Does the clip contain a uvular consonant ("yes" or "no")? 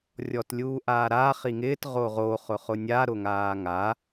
yes